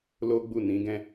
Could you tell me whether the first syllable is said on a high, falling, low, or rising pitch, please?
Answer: high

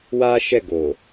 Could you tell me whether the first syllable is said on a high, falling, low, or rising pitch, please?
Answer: high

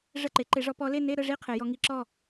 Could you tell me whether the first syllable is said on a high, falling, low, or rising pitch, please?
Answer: falling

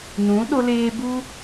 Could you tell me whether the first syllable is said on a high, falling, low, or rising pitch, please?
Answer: rising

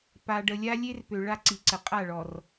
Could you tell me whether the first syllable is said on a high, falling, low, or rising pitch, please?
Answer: low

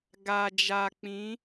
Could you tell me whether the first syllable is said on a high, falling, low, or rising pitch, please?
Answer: low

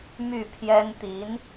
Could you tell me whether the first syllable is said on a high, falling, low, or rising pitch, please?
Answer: falling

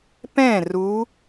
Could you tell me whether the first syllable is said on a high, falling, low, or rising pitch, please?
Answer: falling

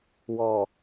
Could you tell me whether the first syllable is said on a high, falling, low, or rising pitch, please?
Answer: low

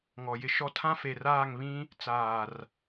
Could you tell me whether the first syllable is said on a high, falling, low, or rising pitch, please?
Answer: low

